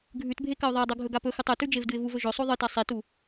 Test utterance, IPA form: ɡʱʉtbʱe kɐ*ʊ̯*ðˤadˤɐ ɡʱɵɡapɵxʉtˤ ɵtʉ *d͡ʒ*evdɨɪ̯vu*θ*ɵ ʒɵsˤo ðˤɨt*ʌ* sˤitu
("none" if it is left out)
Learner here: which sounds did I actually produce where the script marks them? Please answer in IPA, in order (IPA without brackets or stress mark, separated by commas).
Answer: ʊ̯, d͡ʒ, v, a